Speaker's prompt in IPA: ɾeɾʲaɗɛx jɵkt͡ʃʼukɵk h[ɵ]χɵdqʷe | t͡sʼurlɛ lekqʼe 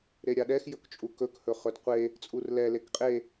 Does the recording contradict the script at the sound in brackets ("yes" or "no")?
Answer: no